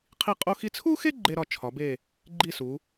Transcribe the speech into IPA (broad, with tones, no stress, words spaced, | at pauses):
qʰi˥˧ qʼo˥xi˥ t͡sʰu˥xe˥ ɡ͡ǃe˥ɾɒ˥˧ t͡ʃʰɒ˨˦be˥˧ | ɡ͡ǃi˥˧su˨˦